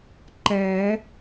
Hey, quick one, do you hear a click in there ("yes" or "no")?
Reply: yes